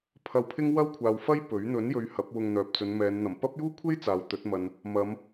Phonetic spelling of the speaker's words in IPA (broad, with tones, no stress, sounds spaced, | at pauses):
pʰ ɐ˧ w pʰ ɪ˥ ŋ w ɐ˥ w kʷʰ aː˨ w f ɐ˥ j p ɵ˨˥ ɥ n̪ ɵ˨˥ n j ɵ˨˧ ɥ h ɐ˨˥ p̚ w ʊ˧ ŋ n̪ œː˨ p̚ t͡s ɵ˨˧ n m ɛː˨˧ n n̪ ɐ˨˩ m p ɐ˥ p̚ j uː˥ kʷʰ e˥ j t͡s aː˨ w t̪ ɵ˨˥ t̚ m ɐ˨ n | m ɐ˨˧ m